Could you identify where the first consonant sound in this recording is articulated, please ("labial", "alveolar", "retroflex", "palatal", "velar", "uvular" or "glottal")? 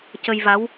palatal